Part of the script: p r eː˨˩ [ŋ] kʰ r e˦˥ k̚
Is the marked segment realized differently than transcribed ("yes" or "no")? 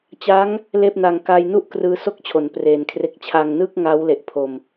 yes